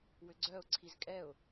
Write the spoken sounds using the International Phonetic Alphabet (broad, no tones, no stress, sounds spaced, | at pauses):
w ʏ ɡ͡ǀ œ ʊ̯ ǀʰ i z kʼ ɛ ʊ̯